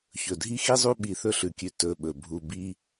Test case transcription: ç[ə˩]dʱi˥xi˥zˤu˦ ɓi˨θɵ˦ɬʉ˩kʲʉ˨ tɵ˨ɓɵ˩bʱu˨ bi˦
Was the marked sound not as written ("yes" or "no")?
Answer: yes